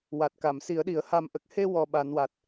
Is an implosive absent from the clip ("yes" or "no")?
no